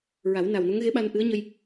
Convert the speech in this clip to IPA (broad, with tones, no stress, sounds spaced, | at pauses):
ɹ a˨˩˦ w n a˨˩ w n o˧˥ ŋ ɣ e˧˥ ɓ a˧ n ʔ ɨ˧˥ ə̯ ɲ ə˧ j